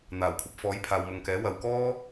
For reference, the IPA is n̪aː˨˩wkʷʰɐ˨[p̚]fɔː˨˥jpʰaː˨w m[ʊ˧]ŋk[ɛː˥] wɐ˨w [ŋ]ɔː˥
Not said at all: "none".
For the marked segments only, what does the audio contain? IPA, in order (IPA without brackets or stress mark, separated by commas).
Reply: p̚, ʊ˨, ɛː˨˥, k